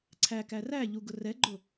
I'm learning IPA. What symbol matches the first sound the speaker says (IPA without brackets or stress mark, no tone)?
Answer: ǀʰ